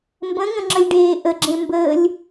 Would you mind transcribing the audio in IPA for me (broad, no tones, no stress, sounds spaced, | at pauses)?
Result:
m b ə̃ ŋ ə̃ ŋ͡ǁ ə lʲ ɖ eː ʔ ə ɡ͡ǁ ẽ m b əː lʲ